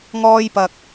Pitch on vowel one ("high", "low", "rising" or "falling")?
high